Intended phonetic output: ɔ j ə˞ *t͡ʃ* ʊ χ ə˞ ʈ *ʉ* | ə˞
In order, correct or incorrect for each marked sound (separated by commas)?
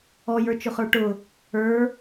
correct, incorrect